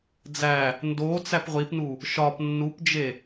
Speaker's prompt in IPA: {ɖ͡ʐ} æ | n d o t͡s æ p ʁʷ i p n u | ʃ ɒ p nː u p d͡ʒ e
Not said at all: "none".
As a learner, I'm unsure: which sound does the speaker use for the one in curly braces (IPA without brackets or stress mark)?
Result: d͡z